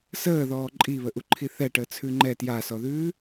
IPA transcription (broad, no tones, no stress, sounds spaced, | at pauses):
s əː ð ɔː ǃʼ i β ə ʔ u ǃʰ i θ ɛ ʈ əː t͡sʰ ʉ ŋ͡ǃ ɛ t j a s ɔ ð ʉː